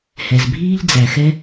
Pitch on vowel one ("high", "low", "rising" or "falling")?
low